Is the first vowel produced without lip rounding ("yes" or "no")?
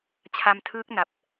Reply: yes